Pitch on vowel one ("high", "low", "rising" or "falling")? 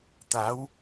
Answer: rising